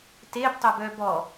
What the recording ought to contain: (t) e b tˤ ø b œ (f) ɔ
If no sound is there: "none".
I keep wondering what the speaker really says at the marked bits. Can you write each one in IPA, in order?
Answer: t, b

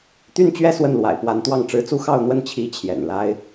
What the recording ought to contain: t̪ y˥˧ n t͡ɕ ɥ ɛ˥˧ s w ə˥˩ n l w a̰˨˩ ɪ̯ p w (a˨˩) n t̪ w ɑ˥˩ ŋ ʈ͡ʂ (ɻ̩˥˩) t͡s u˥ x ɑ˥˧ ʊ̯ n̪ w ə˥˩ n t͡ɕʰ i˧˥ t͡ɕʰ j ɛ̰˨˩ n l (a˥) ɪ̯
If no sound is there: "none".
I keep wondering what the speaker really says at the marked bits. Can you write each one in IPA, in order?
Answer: a˧˥, ɻ̩˧˥, a˥

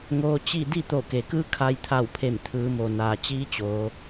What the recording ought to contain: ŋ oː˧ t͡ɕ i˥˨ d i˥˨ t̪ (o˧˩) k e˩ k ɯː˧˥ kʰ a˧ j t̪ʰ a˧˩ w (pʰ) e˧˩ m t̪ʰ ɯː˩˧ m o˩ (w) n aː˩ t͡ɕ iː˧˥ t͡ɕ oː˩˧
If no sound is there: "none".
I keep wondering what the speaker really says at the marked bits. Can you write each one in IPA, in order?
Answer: o˧˩, pʰ, none

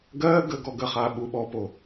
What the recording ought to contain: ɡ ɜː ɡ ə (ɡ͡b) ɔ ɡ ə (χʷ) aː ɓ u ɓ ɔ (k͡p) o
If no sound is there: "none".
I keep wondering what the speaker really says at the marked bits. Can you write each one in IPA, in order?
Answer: ɡ, χ, p

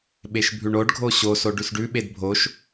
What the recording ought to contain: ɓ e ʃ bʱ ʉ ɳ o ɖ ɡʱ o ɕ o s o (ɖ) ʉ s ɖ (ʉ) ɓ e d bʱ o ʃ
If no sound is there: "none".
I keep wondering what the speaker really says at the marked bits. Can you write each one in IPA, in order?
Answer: ɖ, ʉ

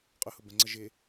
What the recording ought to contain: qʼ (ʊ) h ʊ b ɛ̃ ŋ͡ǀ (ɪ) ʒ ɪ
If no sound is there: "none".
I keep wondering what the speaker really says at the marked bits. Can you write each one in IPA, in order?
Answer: ʊ, ə

